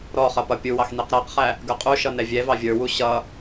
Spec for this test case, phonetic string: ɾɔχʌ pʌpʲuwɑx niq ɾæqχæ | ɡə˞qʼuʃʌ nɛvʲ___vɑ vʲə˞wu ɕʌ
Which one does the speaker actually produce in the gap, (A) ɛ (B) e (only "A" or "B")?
A